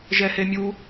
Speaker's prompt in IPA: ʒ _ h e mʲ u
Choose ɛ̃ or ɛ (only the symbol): ɛ